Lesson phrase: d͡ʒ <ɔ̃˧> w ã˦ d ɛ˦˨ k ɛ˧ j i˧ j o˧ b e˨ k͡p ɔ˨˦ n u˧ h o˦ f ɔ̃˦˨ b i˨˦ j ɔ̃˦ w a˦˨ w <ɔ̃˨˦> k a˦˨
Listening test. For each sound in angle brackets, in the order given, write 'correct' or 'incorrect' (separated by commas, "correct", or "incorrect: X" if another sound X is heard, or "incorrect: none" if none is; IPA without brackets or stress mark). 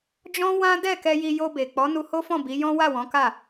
incorrect: ɔ̃˦, correct